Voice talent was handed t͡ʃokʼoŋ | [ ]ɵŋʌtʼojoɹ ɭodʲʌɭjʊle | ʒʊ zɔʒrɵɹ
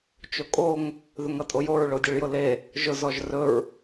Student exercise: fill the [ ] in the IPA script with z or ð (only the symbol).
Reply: ð